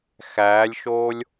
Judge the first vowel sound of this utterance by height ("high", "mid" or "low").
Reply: low